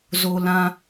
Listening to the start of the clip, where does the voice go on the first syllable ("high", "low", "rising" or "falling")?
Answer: low